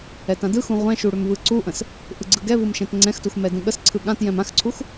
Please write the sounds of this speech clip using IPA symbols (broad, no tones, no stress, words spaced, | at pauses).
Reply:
ɛtãdɯxũ ʁʷɛ̃ʃu ɽʏmvɯǀuʔə̃s | ʔɯɡ͡ǀɯɡɛvɯm ʃɛ̃tŋ͡ǀɛ̃xtux mɛdũɠəsǀʰɯ ɠãt jɛ̃mãxǀʰux